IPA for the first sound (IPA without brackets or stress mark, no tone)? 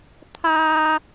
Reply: t̪ʰ